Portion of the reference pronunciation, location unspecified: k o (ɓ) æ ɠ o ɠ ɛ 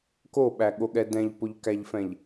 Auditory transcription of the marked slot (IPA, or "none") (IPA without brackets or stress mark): ɓ